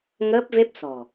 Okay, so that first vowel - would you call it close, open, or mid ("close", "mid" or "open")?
mid